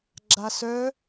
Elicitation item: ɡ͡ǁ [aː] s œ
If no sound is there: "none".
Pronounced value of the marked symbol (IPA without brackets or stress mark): a